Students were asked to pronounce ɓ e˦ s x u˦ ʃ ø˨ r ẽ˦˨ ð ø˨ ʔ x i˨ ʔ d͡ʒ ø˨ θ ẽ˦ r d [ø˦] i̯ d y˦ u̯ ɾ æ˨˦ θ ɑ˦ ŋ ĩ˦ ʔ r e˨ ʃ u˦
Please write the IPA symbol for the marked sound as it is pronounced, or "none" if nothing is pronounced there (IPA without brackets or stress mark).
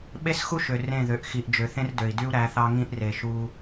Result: ø˨